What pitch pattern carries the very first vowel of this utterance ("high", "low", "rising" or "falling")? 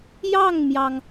falling